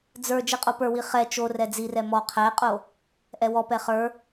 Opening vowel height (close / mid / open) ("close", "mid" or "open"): mid